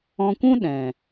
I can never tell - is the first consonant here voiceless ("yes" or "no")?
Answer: yes